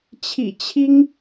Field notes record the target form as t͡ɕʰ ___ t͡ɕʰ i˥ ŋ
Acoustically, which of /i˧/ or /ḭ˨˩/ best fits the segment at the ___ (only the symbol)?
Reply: ḭ˨˩